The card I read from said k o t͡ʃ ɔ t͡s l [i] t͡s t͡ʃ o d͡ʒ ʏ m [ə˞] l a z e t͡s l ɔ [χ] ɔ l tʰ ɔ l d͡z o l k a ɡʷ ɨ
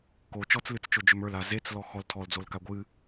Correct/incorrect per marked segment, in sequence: incorrect: ɨ, correct, incorrect: x

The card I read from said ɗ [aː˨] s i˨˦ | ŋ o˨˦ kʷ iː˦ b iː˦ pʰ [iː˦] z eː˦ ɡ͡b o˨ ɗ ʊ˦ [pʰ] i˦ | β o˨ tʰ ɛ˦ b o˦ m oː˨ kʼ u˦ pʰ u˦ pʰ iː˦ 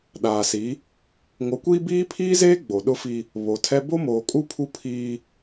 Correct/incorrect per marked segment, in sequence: correct, correct, incorrect: f

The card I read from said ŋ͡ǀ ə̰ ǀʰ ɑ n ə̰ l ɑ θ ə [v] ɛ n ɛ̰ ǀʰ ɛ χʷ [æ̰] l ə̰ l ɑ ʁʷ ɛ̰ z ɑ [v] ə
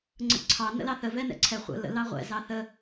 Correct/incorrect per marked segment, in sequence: correct, incorrect: ə̰, incorrect: θ

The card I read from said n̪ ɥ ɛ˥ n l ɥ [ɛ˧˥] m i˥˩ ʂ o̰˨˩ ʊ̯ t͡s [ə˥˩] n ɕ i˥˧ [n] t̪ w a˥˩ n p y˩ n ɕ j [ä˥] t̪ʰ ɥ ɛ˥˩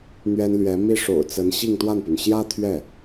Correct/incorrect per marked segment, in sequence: correct, incorrect: ə˧˥, incorrect: ŋ, correct

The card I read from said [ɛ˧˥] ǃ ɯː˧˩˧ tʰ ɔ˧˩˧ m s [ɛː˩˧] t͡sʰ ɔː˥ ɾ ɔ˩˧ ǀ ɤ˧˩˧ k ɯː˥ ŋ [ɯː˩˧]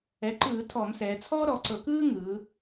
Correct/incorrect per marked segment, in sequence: incorrect: ɛ˩˥, correct, correct

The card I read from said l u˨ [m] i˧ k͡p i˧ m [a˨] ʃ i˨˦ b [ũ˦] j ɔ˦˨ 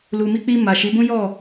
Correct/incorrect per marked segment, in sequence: correct, correct, correct

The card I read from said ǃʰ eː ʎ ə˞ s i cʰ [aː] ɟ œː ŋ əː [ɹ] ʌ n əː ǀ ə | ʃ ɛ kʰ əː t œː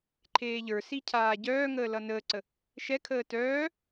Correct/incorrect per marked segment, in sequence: correct, incorrect: l

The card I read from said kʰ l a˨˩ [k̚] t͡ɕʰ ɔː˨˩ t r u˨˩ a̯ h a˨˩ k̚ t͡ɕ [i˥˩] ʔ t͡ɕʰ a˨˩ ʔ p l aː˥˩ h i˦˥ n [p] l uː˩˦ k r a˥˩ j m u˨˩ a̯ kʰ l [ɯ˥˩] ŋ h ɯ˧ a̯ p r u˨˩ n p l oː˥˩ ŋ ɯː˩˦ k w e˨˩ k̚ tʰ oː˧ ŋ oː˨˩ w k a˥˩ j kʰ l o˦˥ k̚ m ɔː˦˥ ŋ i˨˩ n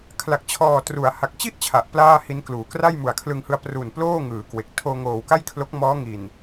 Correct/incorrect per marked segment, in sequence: correct, correct, incorrect: k, incorrect: ɯ˧

